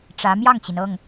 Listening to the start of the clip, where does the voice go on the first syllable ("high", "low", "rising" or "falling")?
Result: rising